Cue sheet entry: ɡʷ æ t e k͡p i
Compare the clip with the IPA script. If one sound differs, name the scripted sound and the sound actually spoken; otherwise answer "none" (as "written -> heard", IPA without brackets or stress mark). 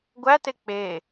i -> e